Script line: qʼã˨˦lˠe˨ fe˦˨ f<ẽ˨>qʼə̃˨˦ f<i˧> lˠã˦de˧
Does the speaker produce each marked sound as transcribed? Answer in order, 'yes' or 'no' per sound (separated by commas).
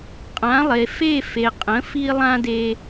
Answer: no, yes